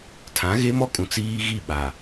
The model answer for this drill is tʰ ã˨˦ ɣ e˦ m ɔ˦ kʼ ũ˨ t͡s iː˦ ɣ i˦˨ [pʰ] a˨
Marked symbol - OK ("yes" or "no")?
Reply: no